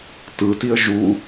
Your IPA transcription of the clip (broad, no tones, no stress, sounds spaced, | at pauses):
t ɯ t i ə̯ ʒ u